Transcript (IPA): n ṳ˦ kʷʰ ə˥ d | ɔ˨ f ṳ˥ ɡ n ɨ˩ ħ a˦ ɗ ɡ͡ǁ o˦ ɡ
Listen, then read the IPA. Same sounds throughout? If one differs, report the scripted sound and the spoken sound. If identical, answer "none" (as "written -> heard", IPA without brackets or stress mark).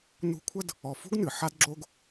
ɗ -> d